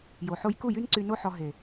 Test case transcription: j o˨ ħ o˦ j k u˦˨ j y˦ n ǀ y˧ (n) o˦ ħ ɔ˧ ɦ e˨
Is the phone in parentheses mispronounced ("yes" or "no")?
no